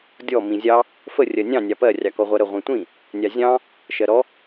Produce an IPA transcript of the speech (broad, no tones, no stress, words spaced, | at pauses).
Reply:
dʲɔ mĩzʲɑ | fə rʲɜnʲɑ̃ nʲɑpɜ rʲɑkɔʁʷɜɾə ʁʷĩtʷĩ | nʲɑzʲɑ̃ | ʃɜɾɔ